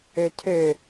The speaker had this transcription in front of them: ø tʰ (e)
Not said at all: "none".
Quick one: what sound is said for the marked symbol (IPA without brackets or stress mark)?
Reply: ø